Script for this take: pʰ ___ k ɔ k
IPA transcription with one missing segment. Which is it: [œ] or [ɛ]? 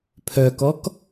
œ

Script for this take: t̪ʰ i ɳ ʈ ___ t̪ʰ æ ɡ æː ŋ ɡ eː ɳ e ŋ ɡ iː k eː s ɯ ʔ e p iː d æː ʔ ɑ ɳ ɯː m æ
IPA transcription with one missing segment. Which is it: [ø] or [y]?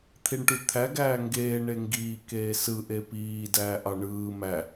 y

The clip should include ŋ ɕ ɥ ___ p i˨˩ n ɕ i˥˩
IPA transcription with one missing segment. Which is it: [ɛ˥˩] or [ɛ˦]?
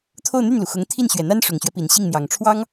ɛ˦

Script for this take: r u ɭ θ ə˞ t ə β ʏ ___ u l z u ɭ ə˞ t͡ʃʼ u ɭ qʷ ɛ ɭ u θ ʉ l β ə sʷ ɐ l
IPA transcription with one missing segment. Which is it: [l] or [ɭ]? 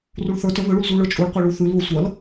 ɭ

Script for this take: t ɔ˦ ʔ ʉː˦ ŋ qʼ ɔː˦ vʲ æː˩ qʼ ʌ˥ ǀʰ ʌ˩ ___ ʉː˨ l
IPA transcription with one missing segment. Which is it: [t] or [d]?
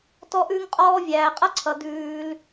d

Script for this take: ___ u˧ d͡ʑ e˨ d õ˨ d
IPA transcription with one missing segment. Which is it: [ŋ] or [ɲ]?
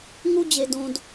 ŋ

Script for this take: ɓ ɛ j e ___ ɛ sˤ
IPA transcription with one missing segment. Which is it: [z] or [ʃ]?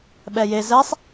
z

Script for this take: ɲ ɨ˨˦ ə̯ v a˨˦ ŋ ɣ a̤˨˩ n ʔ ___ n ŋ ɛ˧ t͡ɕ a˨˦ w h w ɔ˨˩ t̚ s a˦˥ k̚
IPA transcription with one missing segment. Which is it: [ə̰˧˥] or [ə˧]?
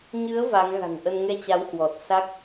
ə˧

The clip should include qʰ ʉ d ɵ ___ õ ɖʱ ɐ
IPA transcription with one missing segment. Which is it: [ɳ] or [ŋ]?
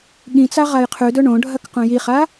ɳ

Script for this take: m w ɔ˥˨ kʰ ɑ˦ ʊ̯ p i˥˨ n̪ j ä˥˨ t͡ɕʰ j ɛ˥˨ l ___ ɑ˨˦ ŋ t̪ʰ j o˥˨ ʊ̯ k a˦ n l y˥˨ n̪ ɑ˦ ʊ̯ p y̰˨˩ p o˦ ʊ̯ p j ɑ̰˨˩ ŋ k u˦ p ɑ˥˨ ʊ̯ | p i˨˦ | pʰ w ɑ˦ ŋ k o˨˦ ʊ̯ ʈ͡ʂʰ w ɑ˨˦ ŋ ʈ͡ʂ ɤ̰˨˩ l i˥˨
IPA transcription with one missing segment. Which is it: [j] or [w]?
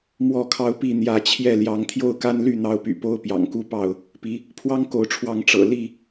j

